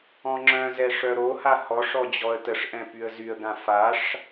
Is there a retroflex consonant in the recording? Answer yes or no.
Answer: yes